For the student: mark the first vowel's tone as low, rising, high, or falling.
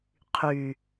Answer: low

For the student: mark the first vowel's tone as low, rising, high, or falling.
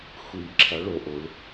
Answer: low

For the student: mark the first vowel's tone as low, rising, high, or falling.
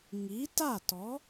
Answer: rising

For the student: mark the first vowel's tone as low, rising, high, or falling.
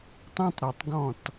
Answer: high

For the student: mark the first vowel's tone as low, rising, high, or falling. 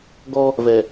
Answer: high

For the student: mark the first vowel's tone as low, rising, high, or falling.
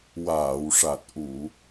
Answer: low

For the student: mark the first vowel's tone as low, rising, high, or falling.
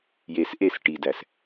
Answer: low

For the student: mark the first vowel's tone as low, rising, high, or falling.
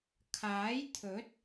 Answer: rising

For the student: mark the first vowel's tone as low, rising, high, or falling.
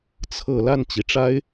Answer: low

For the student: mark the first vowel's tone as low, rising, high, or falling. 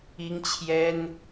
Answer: high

